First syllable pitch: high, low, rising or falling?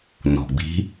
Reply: low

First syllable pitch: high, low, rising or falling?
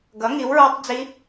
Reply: rising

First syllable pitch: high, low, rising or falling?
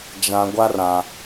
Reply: low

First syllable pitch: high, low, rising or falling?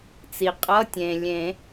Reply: low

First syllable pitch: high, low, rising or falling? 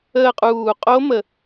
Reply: falling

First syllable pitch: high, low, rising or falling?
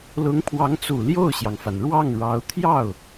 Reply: rising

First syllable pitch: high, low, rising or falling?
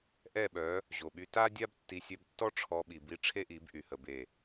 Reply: falling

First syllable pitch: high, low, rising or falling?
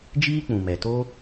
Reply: high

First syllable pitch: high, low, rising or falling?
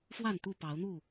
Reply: falling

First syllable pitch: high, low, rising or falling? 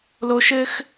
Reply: high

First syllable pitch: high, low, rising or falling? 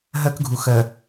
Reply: high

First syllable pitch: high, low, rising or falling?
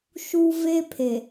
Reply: high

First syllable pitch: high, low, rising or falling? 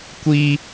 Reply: high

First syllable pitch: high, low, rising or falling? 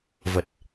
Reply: low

